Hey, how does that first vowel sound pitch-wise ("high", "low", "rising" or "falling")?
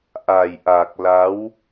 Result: low